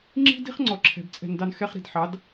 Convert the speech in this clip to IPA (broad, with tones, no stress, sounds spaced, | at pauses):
ŋ͡ǁ i̤˦ d i̤˦ χ ŋ͡ǀ ɔ˨ ǁʰ ɛ̤˨ b t͡sʼ ɛ̤˨ n d ɑ˧ n x ɛ˧ χ ɾ i̤˨ d ħ ɑ˨˦ d